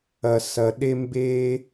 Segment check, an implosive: present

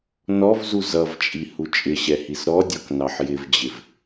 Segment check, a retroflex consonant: absent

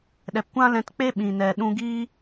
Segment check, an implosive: present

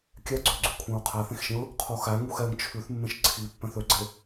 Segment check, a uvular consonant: present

